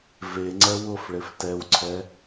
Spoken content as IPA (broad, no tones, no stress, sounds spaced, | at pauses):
v e ŋ͡ǀ ɛ w ʊ f ɭ e f t ɛ w ǀʰ ɛ